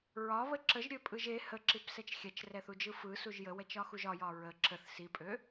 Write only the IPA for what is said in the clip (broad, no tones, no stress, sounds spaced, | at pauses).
ɹ ɒ β ə ǁ ə ʒ ɾʲ ø pʼ ɯ ʒ e h ə ǁ i p s ɛ t͡ʃ xʲ ɛ t͡ʃ r ɛ θ u d͡ʒ ɯ f ɯ s u ʒ j ə w ɛ t͡ʃ ɒ x u ʒ ɒ j ɒ ɹ ə ǁ ə θ s i pʼ ø